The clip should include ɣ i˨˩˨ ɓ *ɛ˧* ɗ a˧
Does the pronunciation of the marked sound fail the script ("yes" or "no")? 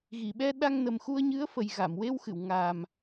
no